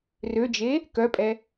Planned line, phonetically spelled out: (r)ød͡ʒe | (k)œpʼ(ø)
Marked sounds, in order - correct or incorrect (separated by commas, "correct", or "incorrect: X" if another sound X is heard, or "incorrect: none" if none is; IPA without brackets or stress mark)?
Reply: correct, correct, incorrect: ɛ